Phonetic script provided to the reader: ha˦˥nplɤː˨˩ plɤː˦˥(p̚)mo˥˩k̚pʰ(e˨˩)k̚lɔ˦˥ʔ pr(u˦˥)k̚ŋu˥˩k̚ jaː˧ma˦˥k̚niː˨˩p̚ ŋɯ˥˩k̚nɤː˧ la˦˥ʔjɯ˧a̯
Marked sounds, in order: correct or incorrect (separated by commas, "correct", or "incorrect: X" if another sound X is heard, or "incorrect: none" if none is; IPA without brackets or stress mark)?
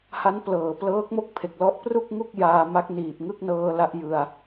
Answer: incorrect: k̚, correct, incorrect: u˥˩